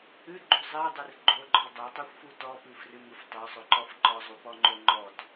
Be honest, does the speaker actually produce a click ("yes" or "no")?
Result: yes